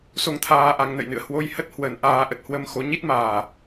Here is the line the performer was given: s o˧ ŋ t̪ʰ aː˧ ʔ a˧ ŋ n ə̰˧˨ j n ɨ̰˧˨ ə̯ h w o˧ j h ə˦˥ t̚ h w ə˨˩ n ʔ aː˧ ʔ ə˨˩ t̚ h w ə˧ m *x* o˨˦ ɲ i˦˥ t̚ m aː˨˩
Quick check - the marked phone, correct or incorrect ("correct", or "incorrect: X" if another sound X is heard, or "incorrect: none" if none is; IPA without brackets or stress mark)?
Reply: correct